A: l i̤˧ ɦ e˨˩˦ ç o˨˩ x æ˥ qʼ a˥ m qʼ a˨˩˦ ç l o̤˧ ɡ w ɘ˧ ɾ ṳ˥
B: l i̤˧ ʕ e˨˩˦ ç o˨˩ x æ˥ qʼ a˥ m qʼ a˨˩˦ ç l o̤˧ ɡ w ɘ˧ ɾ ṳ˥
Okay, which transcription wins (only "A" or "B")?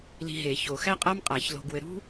A